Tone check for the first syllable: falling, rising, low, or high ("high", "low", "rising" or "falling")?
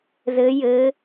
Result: rising